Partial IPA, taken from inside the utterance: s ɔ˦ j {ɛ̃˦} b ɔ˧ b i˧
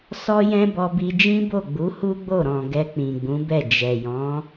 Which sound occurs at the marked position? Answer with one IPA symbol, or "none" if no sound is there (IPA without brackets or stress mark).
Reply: ɛ̃˦